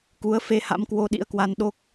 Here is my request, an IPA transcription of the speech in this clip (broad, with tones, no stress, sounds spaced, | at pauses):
k u˨˦ ə̯ f e˧ h a̰˧˥ m k w o˧ ɗ ḭ˧˥ ə̯ k w a˧ n ɗ o˦˥ k̚